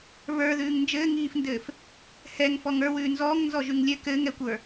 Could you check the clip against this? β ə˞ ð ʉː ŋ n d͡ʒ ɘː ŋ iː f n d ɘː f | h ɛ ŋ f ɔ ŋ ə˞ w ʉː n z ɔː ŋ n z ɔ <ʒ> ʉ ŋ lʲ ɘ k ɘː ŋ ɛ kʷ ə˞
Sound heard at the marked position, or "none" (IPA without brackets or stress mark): ʒ